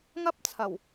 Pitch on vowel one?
high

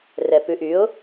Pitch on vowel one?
low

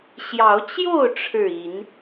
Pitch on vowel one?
rising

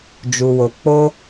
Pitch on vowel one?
low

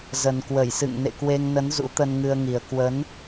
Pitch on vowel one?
low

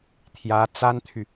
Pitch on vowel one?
rising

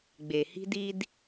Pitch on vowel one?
low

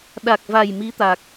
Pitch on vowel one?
low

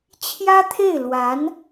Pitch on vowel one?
high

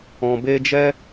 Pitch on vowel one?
low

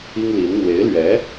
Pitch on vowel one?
high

